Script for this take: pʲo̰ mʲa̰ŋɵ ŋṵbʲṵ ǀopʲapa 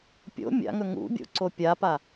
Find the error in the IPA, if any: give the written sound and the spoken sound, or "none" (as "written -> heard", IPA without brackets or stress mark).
none